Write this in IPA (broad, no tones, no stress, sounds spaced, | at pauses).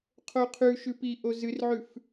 qʰ o qʰ ʉ ʃ ʉ p i ʔ o z ɨ r ʕ ʉ f